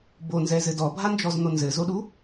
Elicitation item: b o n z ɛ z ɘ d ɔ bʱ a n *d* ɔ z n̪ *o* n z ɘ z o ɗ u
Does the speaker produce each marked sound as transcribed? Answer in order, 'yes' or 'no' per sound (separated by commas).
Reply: no, yes